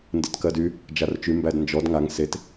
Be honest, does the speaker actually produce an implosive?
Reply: no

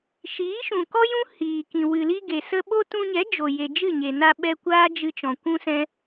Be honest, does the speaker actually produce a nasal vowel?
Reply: yes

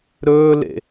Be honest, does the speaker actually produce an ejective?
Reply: no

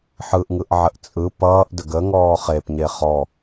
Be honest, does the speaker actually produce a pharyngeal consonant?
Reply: yes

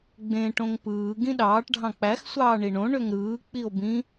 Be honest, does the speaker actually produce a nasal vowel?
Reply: yes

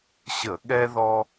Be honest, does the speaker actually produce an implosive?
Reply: yes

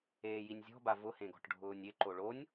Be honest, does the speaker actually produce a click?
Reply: yes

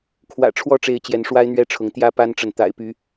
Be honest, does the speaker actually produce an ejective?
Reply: no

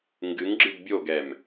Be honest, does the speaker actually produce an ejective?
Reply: no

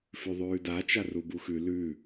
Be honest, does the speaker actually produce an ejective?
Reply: no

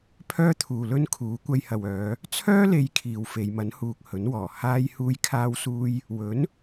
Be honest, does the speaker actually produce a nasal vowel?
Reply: no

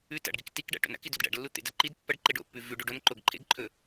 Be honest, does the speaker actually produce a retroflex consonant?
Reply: yes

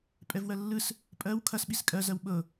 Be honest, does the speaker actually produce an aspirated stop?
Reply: yes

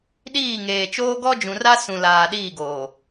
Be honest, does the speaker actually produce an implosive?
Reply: yes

